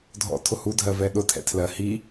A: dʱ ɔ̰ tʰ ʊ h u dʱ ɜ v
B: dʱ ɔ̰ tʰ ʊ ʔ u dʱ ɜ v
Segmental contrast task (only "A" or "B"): A